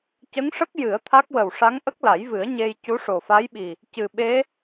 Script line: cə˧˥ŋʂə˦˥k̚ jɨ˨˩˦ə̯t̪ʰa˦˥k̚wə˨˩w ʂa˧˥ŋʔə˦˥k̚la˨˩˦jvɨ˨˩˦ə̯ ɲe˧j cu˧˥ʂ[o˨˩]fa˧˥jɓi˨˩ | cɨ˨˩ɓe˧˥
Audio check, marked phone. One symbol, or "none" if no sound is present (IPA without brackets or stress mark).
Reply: o˨˩